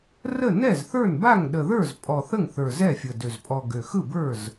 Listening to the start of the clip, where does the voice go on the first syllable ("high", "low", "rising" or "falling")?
falling